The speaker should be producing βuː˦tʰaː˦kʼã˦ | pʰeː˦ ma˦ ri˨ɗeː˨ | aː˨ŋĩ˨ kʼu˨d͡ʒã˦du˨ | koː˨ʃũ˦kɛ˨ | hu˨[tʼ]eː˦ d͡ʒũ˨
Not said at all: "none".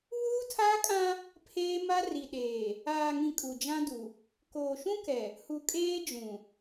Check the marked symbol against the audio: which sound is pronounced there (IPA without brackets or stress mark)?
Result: kʼ